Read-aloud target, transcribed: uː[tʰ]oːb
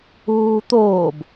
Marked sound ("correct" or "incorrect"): incorrect